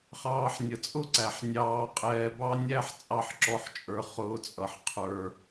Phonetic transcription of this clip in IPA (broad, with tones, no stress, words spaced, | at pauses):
χɑː˧ħnʲə˨t͡sʼʊ˦ǀæ˨ħ nʲɑː˧qʼɛː˧bɑ˦ nʲæ˦ħt͡sʼɑ˦˨ħǁɔ˧ħt͡ʃʼə˞˧ χʊː˧t͡sʼʌ˨ħ qʰə˞˧